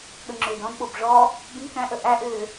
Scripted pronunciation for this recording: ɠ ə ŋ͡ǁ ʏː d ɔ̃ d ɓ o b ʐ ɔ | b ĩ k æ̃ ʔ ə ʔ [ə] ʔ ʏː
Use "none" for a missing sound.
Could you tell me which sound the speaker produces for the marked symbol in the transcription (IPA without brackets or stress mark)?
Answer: æ